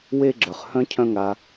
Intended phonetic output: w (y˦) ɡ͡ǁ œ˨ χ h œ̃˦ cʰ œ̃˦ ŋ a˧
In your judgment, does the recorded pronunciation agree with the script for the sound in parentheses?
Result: no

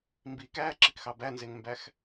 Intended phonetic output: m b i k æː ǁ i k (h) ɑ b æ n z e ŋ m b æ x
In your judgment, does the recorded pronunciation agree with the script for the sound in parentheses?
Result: no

